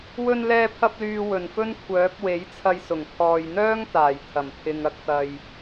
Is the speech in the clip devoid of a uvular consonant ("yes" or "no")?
yes